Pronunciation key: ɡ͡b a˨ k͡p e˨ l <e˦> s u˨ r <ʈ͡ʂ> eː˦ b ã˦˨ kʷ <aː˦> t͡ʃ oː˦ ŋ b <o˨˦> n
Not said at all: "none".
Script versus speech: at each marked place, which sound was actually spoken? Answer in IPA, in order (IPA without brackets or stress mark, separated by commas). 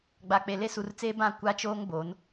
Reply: e˦, t͡s, a˦, o˨˦